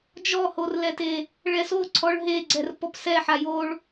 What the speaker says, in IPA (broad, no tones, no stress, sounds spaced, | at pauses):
d͡ʒ ɔ h o r l ɛ t e | ɭ ɛ s o ǀʰ ɔ ɭ ɦ e ɡ͡ǀ ɛ r p ɔ p s ɛ ħ a j o ɭ